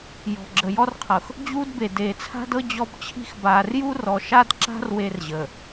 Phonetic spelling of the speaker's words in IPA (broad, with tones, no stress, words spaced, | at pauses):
jɔ̤˨ɡ͡ǁə˨ jɔ˦rqʰɤ˨x | d͡ʑuː˦dbe˨ deː˨t͡sʰa̤˦dɤ˦ d͡ʑɔ˦bt͡ɕʰi̤˦x baː˨rju˦rɔ˨ ʃa˦dǁa̤˦r we˦rʑəː˨